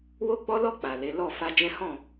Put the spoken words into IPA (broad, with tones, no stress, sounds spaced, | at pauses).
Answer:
w o˦ ɡ͡b ɔ˦ l ɔ˦˨ k͡p a˨ l e˨˦ l ɔ˦˨ f a˧ d͡ʒ ɛ̃˦ h ɔ̃˦˨